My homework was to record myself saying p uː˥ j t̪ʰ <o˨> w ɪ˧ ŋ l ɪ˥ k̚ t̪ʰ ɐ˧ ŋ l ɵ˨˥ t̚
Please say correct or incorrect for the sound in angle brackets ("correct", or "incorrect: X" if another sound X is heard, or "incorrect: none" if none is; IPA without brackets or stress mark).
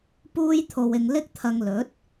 incorrect: o˧